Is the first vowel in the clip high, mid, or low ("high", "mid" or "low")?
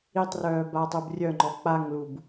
high